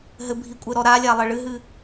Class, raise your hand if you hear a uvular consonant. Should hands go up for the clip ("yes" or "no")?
no